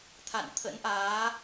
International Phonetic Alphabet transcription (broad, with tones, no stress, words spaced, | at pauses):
t̪ʰa̰˧˨nt̪ʰə̰˧˥nʔaː˨˦